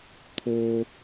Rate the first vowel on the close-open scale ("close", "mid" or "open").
mid